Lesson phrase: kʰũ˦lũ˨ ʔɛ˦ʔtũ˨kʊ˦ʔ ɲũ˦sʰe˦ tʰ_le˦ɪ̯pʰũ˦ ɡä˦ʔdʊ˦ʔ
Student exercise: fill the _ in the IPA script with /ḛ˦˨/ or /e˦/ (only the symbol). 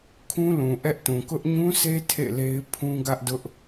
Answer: ḛ˦˨